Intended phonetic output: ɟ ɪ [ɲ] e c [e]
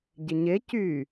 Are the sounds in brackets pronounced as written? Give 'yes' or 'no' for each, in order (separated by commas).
yes, no